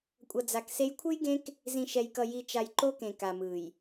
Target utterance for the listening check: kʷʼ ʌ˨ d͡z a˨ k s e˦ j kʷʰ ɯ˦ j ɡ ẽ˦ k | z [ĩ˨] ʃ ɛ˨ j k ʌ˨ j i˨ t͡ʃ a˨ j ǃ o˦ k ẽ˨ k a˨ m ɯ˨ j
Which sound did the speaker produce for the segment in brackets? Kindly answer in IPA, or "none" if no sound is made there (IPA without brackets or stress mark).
ĩ˨